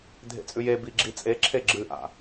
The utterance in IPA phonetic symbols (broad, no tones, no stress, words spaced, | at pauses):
dʱḛt͡sʼʉjebi ɡ͡ǁit͡sʼeǁʰe ɡ͡ǁɨʔa̰